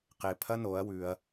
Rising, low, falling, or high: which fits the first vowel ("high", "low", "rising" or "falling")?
low